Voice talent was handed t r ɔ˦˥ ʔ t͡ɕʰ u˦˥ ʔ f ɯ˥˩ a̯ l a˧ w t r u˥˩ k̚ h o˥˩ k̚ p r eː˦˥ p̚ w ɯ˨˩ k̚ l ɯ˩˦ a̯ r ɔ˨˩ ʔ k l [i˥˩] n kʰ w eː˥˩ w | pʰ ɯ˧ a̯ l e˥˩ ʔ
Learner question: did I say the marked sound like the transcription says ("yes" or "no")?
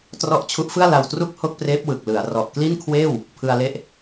yes